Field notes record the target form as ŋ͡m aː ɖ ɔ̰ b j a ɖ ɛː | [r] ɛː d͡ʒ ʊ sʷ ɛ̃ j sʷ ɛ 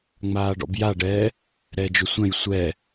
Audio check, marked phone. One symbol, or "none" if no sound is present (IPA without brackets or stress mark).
ɾ